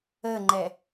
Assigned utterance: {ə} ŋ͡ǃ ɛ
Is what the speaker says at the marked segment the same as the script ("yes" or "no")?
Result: yes